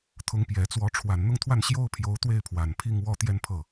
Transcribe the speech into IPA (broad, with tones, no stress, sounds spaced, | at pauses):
t̪ʰ ʊ˧˥ ŋ p j ɛ˨˩ t͡s w ɔ˧˥ ʈ͡ʂʰ w a˨˩ n n̪ ʊ˥˧ ŋ t̪ʰ w a˥˩ n ɕ j o˥ ʊ̯ pʰ j o˧˥ ʊ̯ t̪ w e˥˩ ɪ̯ pʰ w a˨˩ n pʰ i˥˧ ŋ w ɔ˥˧ t̪ j ɛ˥˧ n pʰ ɤ˥˩